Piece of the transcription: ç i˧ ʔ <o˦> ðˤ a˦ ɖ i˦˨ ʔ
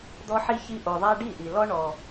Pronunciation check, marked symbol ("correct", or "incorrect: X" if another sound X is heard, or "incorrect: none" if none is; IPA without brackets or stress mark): incorrect: o˨